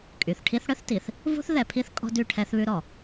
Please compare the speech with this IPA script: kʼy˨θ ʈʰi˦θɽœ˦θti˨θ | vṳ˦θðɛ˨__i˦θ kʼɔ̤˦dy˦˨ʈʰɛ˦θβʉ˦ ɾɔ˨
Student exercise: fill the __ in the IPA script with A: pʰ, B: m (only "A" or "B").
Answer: A